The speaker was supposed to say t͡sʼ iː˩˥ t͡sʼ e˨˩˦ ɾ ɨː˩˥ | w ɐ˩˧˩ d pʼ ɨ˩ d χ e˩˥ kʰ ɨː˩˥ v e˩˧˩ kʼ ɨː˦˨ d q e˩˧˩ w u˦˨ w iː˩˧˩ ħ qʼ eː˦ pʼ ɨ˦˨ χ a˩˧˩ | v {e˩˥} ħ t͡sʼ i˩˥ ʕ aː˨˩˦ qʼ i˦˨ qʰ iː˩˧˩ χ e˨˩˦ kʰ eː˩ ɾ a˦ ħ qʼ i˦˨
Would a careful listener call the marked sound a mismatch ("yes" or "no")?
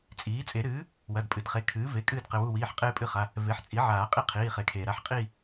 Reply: no